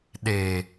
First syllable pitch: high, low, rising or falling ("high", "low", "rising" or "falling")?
low